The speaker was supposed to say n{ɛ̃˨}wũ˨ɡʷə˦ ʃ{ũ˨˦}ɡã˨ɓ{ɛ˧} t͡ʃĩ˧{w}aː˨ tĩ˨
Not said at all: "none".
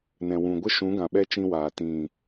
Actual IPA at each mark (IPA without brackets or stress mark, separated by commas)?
ɛ̃˨, ũ˨˦, ɛ˧, w